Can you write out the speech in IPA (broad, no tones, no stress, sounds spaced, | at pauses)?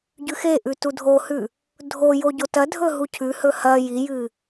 ɟ ʉ x e ʔ ʉ t u dʱ o h ʉ | dʱ o j o ɟ o t ɐ dʱ ɵ ɦ u cʰ ʉ h ɵ h ɐ j i j ɨ